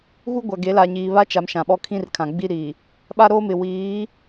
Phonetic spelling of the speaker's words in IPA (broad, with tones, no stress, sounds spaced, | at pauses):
ɣ u˦ ɡʷ a˨ ɡ e˨˦ l a˨ ɲ iː˨ β a˦ t͡ʃ a˨ m ʃ ã˨ ɓ ɔ˦ kʰ ĩ˦ r kʰ ã˨ ɡ͡b i˦ ɾ iː˨ | ɓ a˦ ɾ oː˦ m ɪ˨ w iː˨˦